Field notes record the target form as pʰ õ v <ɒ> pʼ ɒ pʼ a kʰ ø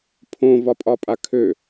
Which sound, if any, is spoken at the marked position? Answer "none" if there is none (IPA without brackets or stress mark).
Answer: ɒ